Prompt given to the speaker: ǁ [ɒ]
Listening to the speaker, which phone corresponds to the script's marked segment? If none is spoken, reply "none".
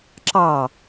ɑ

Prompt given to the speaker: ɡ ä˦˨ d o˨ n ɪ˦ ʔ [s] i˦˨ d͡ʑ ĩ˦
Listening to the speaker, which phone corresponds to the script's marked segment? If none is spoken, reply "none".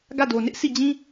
s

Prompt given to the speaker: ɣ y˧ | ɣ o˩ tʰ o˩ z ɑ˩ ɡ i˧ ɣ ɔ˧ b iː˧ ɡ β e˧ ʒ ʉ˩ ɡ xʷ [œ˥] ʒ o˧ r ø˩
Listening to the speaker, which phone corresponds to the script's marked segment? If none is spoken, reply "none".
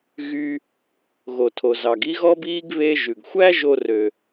æ˥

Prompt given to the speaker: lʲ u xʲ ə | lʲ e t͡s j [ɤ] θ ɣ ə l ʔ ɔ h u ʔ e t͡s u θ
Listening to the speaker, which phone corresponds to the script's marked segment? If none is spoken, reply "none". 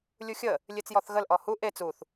ɔ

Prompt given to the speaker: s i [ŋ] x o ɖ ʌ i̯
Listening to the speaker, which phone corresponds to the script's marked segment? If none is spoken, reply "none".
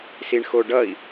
ɳ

